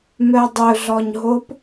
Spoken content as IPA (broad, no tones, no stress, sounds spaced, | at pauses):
m œ dˤ ɵ ɮ ɔ ɲ ɦ o p